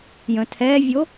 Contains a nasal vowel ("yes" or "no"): yes